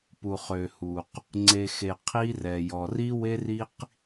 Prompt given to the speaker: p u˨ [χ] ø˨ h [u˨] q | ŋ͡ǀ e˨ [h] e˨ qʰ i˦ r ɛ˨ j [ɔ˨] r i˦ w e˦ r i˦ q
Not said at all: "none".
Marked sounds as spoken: χ, u˨, x, ɔ˨

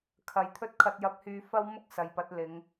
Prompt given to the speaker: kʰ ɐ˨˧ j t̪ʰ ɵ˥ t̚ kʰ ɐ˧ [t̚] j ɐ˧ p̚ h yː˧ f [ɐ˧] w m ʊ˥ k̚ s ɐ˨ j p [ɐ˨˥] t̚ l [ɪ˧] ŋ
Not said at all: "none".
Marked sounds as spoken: t̚, ɐ˥, ɐ˨˥, ɪ˨˧

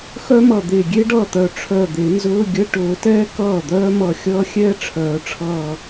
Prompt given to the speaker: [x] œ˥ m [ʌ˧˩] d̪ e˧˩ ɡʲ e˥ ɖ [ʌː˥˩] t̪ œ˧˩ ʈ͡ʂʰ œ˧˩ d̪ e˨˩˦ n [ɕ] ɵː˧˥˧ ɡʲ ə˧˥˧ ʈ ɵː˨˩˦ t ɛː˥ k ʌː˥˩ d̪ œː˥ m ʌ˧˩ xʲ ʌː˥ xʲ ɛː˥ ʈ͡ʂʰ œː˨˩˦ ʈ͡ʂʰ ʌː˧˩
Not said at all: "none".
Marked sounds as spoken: x, ʌ˧˩, ʌː˥˩, z

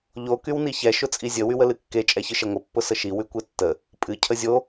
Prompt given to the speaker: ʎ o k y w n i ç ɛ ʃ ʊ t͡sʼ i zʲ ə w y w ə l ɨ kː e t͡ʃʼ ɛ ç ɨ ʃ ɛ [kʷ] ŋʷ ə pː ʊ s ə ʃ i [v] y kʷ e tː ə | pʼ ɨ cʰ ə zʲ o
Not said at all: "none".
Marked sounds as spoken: none, w

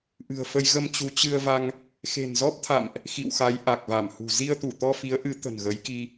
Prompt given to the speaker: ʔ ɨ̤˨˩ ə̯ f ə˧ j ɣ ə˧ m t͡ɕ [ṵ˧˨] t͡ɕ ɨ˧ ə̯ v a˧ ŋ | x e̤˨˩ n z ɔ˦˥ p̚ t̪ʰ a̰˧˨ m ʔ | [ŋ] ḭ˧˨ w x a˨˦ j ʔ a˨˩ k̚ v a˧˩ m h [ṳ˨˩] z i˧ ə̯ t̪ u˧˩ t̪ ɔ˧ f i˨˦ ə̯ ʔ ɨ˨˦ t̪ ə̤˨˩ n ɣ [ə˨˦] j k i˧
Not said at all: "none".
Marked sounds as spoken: u˨˦, x, ṳ˨˩, ə˨˦

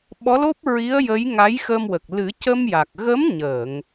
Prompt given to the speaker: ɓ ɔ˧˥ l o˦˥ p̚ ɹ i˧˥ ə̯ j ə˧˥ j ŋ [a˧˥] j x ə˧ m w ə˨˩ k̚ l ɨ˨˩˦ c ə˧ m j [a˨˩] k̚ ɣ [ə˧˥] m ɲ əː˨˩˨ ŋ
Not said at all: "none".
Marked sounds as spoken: a˧˥, a˨˩, ə˧˥

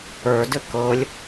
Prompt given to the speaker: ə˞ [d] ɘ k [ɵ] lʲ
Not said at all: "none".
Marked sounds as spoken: d, ɤ

